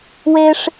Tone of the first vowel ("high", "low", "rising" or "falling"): high